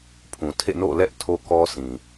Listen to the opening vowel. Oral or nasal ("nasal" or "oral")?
nasal